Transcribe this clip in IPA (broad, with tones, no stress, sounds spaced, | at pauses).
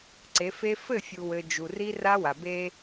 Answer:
ǀ e˨˦ f e˦ f ɘ˦˨ fʲ u˨ w ɘ˨ d͡ʒ u˨ r i˦ r a˦ w a˨ b e˦